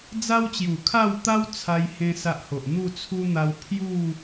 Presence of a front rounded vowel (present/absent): absent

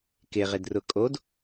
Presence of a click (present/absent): absent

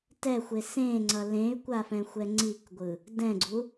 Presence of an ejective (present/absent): absent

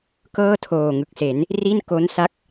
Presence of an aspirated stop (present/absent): present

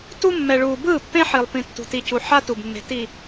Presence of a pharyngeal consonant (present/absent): present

